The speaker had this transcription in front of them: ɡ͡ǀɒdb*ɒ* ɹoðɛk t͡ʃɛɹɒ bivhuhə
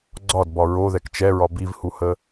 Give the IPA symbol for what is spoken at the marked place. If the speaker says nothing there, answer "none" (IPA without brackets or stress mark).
ɒ